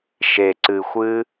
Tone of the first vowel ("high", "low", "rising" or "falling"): low